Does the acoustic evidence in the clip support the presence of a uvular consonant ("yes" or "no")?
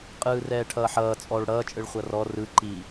yes